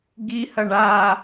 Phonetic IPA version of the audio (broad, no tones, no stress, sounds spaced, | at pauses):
ɡ i h ɐ ɳ a